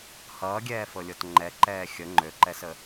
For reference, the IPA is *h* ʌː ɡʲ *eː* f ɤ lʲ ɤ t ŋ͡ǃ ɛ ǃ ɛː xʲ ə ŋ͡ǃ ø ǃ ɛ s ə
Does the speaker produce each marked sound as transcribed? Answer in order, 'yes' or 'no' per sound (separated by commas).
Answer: yes, no